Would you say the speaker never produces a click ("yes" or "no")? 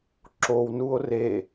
no